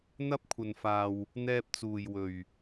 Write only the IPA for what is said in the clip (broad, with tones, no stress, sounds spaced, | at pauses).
n̪ ɐ˥ p̚ kʷʰ ɐ˧ n f aː˧ w | n̪ ɛː˧ p̚ t͡s uː˨ j w ɵ˨ ɥ